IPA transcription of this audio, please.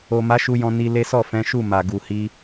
o˨ m a˨˦ ʃ u˧ j ɔ̃˧ n i˧ l e˦ s ɔ˦˨ f ɛ̃˨˦ ʃ u˦˨ m a˨ ɡ u˨ h i˧

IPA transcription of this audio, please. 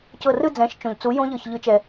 c ɤ˧˩ r ɯ˥˧ d͡z ɛ̃˩˥ ʃ t͡ʃ õ˩ ʎ t͡s u˩˥ j õ˦˥ ʎ ɤ˧˩ ç ʎ ɯ˩˥ t͡ʃ ɛ˩

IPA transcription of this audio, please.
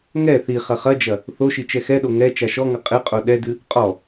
ŋ ɛ θ i χ ɐ χ ɐ d͡ʒ ɐ | θ o ʃ i t͡ʃ ɛ x ɛ ɗ o ŋ ɛ t͡ʃ a ʃ ɔ ŋ ɐ qʼ ɨ qʼ o ɗ ɛ d ɨ | qʼ ɔ

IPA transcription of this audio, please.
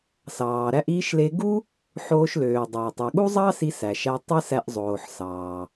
s ɑː˩ ɾ æ˧ ʔ iː˧ ʃ l e˧ ɡ u˥ | ħ oː˧ ʃ l øː˩ dˤ æ˩ tˤ o˩ ɠ u˥ zˤ ɑ˥ s i˧ s æ˩ ʃ æ˧ tˤ ɯ˥ s æ˧ ʔ zˤ oː˩ ħ s ɑː˩

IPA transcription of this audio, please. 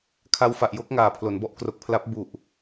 kʰ a˧ w f a˨˩ ʔ j o˥˩ k̚ ŋ aː˨˩ pʰ l o˩˦ n b ɔ˥˩ ʔ k r o˨˩ k̚ pʰ l a˦˥ p̚ b u˨˩ ʔ

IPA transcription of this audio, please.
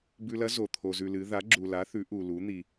b ʉ˧ l ɐ˧˥ z o˩ t̪ʰ o˩ z ʉ˩ l ɨ˩˧ ð a˩˧ ɡ͡ǁ u˩ l a˩˧ θ ʉ˩˧ ʔ u˩ l u˩˧ n̪ i˩

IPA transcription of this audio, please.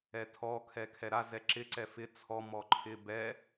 ɛ tʰ ɔ kʰ ɛ kʰ ɛ ɾ a z ɛ ǁ ɪ ǀ ɛ f ɪ t͡sʰ ɔ m ɔ ǃʰ ɪ b ɛ

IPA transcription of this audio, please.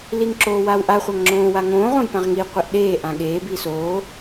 l i ŋ ǁ oː w a w ʔ a χʷ a ŋ ŋ͡ǁ õː w a ŋ õː ʁ õ j p ã ʁ ŋ i qʷ e ʔ ɗ eː ʔ ã ɠ eː b i s oː

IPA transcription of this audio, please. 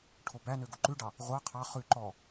ʈʰ o b æ n ø ɡ o ǃ ʉ ɖ ɑ | ʁʷ ɑ qʰ ɑ χ ʉ ǃ ɔ

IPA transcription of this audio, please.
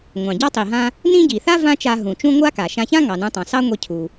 ŋʷ ɑ̃˩ ɟ ɑ˥ tˤ i˩ ɦ ã˧ | n ĩ˥ ɟ i˩ θ a˥ v ã˥ t͡ʃ a˧ ɦ ũ˩ t͡ʃ ũ˥ ŋʷ a˥ k a˩ ʃ ã˧ ç ã˥ ŋ ɑ˩ n ũ˧ tˤ ɑ̃˩ s ɑ˥ ŋʷ i˧ cʰ u˩

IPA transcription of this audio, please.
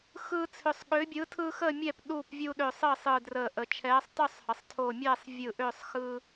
x ɯː˦ t͡sʰ ʏ˧˩ sˤ ɠ ʏː˨˥ bʲ ɯː˨˥ tʰ ɯː˦ x əː˥˨ mʲ ɛ˥˨ p ɗ uː˥˨ p vʲ u˦ ɗ ʏː˧˩ sˤ əː˥˨ sˤ ɯː˧˩ d r əː˧˩ ʔ ə˩˧ t͡ʃʰ ɛː˨˥ sˤ tˤ y˥˨ sˤ h ə˩˧ sˤ tʰ o˧˩ mʲ ɛː˥˨ sˤ vʲ ɯ˧˩ ʔ ʏː˥˨ sˤ x ɯ˦

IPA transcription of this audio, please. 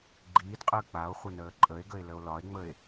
ɡ͡ǃ iː d qʼ əː k͡p a o̯ χʷ ə n əː ǃʼ ə e̯ ɡ ə e̯ l ə o̯ l ɒ e̯ ŋ͡m ə e̯

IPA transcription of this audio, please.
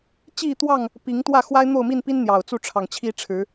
t͡ɕ i˥˨ t̪ w ɑ˥˨ ŋ | p i˨˦ ŋ t̪ w ä˥˨ x w a˦ ɪ̯ n̪ o˥˨ ʊ̯ m i˥˨ n p i˦ n n̪ j ɑ˨˩ ʊ̯ t͡s u˥˨ ʈ͡ʂʰ ɑ˨˩ ŋ t͡ɕʰ i˦ ʈ͡ʂʰ ɻ̩˨˦

